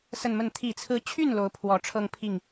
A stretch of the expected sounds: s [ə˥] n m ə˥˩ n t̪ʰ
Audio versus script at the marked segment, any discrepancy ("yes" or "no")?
yes